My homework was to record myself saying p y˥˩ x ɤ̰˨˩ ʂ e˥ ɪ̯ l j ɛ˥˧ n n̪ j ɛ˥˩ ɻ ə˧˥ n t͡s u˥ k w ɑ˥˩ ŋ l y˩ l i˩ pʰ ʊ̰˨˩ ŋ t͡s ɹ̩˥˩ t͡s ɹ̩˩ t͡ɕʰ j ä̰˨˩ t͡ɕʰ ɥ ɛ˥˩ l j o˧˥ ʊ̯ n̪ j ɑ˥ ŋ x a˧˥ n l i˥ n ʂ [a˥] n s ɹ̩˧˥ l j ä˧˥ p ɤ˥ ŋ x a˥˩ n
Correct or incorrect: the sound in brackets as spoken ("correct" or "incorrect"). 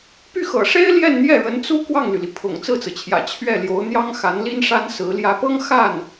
correct